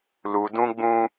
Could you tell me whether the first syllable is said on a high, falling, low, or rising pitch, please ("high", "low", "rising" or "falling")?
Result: low